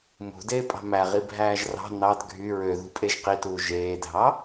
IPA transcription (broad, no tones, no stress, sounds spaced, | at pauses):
m ṳ d eː pʼ ɑ̤ m æ ʁ i bʱ æː ʒ r ɑ̤ n ɑ d ɡʱ y ɹ ø ð ṳ pʼ e ʒ q i t uː ʒ eː dʱ ɑ